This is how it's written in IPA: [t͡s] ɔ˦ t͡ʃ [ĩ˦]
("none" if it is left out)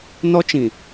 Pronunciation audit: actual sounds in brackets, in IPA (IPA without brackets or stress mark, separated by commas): n, ĩ˨